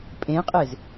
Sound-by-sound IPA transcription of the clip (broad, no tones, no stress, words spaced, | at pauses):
pʼẽqʼez